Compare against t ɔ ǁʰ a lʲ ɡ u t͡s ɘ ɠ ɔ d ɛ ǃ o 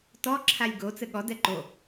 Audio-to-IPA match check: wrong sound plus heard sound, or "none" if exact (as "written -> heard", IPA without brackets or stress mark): u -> o